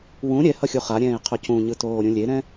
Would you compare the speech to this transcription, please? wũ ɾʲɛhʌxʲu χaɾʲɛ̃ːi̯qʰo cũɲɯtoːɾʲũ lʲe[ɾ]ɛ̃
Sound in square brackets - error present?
no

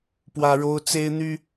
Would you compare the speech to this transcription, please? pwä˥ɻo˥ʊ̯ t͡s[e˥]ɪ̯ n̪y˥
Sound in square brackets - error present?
no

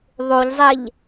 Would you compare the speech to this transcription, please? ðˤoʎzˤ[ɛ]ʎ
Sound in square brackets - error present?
no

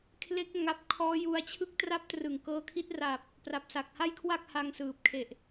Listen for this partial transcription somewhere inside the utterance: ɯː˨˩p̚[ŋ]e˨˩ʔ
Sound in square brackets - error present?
yes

